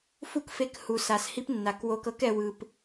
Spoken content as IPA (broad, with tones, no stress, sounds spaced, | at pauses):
f u˦ k f e˧ k h u˨ s a˨ s h i˦ p nː a˨ k w o˧ k ɤ˦ k ɛ˧ w ɯ˧ p